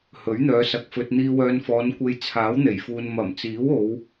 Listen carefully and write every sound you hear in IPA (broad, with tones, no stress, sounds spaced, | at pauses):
h ɵ˨˥ ɥ n̪ œː˨˧ s ɐ˨ k̚ f ɵ˧ t̚ n̪ iː˧ w œː˧ n f ɔː˨˧ n kʷ e˧ j t͡sʰ aː˨˥ w n̪ e˨˩ j f uː˨ n m ɐ˨˩ m t͡s iː˨˥ w o˨˧ w